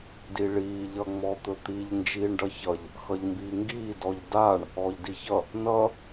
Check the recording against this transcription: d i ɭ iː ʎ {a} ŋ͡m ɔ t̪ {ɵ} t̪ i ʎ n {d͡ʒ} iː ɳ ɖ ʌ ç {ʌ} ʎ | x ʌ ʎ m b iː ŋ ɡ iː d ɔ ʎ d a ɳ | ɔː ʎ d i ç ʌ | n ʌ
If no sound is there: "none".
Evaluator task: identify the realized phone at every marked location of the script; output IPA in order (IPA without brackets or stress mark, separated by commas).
ʌ, ɵ, d͡ʒ, ʌ